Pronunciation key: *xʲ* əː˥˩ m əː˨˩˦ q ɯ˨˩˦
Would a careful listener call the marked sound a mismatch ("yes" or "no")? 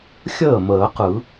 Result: no